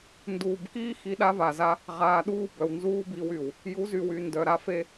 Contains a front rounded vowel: yes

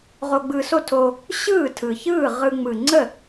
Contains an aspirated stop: yes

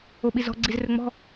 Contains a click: yes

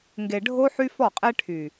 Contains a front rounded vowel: yes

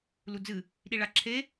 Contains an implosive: yes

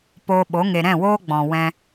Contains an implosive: yes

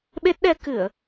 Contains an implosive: yes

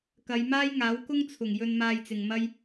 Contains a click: no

